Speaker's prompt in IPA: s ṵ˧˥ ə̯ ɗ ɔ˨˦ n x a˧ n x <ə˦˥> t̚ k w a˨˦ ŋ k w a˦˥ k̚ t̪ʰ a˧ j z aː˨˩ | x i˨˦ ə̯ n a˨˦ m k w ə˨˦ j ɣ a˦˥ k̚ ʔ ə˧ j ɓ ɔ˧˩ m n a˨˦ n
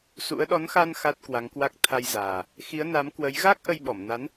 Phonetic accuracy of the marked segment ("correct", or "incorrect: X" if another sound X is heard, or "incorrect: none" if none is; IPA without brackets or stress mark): incorrect: a˦˥